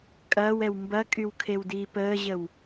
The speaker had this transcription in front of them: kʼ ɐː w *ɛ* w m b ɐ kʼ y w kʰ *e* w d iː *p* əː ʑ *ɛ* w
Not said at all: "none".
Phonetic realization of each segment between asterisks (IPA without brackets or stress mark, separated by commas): ɛ, e, p, ə